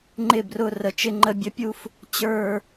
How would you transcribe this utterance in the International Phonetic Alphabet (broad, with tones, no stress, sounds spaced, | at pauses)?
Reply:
ŋ͡ǃ ɪ˧˩ b r ʊ˧˩ r ə˧˩ t͡ʃ ɪ˥˧ ŋ͡ǃ ə˥˧ bʲ ə˥ pʲ u˥˧ f | t͡ɕ ə˞˥˧